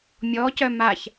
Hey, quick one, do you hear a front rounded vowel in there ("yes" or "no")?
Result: yes